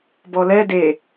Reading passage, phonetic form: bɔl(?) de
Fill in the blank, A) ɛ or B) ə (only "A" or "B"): A